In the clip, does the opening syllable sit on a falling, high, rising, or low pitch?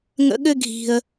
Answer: high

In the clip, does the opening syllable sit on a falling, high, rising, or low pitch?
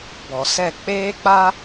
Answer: low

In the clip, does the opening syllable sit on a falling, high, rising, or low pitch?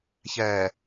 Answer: low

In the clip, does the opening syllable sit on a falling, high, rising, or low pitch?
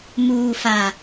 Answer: low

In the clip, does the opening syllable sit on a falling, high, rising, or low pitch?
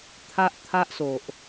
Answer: high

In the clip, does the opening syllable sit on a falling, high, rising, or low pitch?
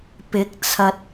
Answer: rising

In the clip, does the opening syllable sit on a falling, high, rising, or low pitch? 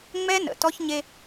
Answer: high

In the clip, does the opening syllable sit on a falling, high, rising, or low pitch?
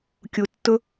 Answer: low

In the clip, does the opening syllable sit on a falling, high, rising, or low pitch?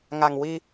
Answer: low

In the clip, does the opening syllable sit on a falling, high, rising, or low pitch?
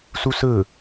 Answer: high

